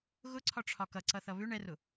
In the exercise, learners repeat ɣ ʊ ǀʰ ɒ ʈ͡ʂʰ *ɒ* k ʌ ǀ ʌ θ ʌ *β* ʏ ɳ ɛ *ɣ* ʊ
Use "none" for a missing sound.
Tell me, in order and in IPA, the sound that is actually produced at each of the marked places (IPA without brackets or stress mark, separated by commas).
ɒ, β, r